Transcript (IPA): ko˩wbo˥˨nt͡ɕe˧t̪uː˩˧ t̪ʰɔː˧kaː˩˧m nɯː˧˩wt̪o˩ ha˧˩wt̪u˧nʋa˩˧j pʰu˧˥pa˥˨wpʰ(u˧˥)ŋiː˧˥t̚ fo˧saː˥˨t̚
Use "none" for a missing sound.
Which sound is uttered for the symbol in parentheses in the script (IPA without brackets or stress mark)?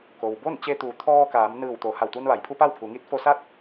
u˩˧